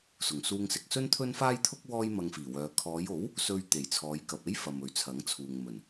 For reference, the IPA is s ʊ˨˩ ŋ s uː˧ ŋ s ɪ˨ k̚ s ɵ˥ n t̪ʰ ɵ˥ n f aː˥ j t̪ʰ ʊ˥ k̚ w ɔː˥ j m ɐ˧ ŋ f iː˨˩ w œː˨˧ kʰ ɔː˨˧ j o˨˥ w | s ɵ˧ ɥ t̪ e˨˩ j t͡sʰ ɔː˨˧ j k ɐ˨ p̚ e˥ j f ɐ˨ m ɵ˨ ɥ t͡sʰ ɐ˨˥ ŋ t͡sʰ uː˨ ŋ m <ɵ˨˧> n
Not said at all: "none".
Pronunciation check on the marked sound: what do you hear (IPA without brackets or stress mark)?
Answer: ɵ˨˩